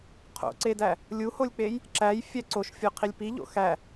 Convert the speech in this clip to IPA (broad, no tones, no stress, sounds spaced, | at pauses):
qʰ o̰ ǀ e d æ | lʲ u h o lʲ k͡p e j | ǁ æ j fʲ æ ǀ o ʃ fʲ o qʰ i lʲ p i ʎ o̰ x æ